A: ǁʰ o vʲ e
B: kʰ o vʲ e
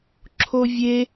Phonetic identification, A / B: A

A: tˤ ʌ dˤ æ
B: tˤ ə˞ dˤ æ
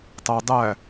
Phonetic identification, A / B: A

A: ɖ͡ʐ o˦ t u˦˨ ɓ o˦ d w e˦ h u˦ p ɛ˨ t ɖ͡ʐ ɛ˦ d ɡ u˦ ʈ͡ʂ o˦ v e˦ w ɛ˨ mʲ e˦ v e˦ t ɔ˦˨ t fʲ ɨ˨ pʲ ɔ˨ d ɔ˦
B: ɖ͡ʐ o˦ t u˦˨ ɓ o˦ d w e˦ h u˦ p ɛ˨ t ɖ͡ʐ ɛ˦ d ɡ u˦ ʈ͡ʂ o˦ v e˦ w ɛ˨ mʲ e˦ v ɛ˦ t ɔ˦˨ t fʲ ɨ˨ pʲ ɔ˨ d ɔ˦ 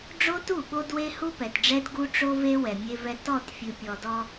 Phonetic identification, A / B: B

